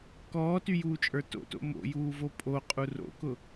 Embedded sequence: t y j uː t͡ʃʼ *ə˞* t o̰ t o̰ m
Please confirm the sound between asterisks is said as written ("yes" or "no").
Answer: yes